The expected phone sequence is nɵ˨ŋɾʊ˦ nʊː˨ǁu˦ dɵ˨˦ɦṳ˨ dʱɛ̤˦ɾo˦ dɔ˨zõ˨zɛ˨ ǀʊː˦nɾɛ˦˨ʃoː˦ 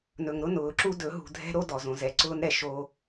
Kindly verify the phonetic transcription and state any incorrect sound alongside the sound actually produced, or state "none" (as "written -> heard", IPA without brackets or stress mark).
none